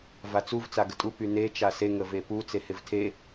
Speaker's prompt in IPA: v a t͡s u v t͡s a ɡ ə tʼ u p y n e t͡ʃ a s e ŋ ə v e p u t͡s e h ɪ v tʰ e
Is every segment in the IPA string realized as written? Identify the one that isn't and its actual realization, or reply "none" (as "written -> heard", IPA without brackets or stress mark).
none